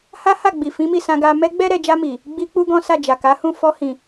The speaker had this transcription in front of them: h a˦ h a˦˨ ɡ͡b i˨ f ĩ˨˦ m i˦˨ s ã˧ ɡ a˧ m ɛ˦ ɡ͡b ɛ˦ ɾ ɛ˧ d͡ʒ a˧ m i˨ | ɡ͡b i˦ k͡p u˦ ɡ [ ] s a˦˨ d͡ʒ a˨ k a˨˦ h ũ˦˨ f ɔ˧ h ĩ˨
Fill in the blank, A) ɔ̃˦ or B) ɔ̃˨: A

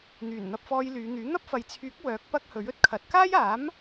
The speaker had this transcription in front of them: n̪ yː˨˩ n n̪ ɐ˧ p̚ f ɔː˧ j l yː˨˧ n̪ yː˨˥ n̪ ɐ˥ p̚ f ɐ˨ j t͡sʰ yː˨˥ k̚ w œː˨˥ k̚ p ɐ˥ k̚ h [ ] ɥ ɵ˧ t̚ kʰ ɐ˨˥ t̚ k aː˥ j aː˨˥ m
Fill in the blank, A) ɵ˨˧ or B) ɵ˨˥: B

